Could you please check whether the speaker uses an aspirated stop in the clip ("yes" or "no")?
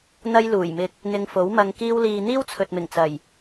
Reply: yes